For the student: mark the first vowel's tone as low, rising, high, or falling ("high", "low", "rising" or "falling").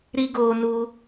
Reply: high